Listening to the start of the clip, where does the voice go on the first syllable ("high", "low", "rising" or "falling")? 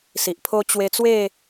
low